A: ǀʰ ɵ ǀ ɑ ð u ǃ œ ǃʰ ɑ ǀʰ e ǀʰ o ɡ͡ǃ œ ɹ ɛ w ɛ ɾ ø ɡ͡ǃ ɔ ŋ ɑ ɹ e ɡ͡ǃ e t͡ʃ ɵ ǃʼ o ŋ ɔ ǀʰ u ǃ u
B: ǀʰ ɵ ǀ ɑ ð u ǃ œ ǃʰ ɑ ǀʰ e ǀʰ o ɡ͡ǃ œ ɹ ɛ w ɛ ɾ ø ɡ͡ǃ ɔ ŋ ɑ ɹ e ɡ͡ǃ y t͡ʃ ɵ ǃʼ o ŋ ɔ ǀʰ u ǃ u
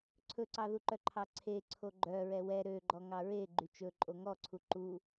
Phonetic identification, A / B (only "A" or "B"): B